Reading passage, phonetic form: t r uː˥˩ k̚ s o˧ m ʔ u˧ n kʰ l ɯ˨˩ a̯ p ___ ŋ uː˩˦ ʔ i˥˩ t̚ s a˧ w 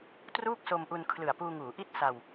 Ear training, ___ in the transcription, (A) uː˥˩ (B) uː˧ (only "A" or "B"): B